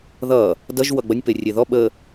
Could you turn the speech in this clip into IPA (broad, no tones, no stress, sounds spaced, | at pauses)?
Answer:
ð ʌ | d ʌ ʒ w ʌ ɡ͡b ʌ nʲ p e rʲ e ð ɔ ɓ ə